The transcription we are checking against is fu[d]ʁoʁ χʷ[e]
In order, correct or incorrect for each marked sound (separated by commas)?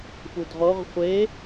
correct, correct